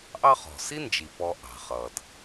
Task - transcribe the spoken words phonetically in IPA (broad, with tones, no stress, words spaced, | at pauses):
ʔɑ˦χɔ̤˩ si˥nd͡ʒi˩pɔ˨ ʔɑ̤˩χʌ˩d